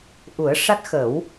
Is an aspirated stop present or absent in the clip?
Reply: absent